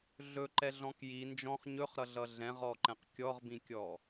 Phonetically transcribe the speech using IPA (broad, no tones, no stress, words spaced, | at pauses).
ɮɵǃɛɮɔ̃k ji nd͡ʒɔ̃χ ɲɵχɾʌɮʌ ɮɛ̃ʁɔǃɛ̃q kʲɔʁbĩkʲɔ